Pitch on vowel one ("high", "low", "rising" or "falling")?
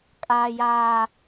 low